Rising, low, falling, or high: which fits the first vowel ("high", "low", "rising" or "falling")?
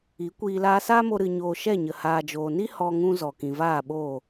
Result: rising